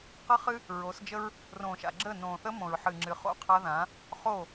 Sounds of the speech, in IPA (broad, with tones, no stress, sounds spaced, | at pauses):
q ə˦ χ ɨ˦ | ɹ o˨˦ s d͡ʒ ə˦ ɹ | r õː˨ ʃ a̰˨ ɡ͡ǁ əː˦˨ n õː˨ θ ə˦ m õ˨ ɹ ħ ɨː˨ ŋ͡ǁ ɨ˨ χ o̰˦ qʰ a˦ ð ã˨˦ | χ o˦˨